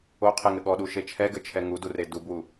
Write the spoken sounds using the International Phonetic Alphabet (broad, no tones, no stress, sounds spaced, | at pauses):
o qʰ e ŋ ɘ ɠ ɔ ɗ u ʃ e t͡ʃʰ ɛ ɡ ɘ t͡ʃʰ ɛ ŋ u d u r e d u b w u